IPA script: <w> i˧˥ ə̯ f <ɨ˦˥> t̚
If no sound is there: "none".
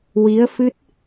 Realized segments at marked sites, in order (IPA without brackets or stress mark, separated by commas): w, ɨ˦˥